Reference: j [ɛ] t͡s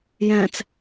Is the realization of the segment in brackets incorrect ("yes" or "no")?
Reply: yes